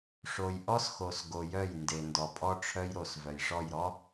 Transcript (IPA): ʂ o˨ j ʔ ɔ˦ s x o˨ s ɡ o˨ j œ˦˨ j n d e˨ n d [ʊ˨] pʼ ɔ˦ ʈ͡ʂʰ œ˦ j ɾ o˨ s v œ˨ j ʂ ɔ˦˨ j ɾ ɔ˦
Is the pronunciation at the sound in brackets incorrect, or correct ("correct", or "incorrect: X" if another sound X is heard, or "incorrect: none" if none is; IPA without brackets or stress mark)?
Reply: incorrect: ɔ˨